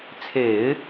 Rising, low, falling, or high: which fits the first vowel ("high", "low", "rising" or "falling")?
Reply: low